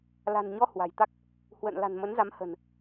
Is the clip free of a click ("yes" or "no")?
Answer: yes